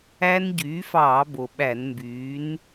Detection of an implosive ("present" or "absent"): present